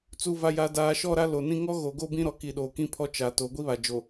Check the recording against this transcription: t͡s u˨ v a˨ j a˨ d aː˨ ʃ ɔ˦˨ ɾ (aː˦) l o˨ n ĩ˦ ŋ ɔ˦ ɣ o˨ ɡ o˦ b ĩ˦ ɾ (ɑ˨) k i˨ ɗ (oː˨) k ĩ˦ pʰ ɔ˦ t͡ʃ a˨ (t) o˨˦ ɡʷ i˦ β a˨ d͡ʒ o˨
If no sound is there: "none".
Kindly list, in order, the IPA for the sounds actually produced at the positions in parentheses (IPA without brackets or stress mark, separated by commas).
a˦, ɔ˨, oː˨, t